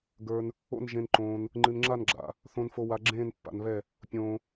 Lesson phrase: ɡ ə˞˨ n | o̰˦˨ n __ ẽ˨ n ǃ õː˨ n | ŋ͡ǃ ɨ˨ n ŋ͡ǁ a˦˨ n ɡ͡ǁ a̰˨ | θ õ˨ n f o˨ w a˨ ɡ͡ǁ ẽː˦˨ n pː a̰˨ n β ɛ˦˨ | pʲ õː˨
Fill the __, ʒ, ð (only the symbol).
ʒ